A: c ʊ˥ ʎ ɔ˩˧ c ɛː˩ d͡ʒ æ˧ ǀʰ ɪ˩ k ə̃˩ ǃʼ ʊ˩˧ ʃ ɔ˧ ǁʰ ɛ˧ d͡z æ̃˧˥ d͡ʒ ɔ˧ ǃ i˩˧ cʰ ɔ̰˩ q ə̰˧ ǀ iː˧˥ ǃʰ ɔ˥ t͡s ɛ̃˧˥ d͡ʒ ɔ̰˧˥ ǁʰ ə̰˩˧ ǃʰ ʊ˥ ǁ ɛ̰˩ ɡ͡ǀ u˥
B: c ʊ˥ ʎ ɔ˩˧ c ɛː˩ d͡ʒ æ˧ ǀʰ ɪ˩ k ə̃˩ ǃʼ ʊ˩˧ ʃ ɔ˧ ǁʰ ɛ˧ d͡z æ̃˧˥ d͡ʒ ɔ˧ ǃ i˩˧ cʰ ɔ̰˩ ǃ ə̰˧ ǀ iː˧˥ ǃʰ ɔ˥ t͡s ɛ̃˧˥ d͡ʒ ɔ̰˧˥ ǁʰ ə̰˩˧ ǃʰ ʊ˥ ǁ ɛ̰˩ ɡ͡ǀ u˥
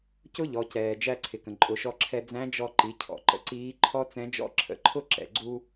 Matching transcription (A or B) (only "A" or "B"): B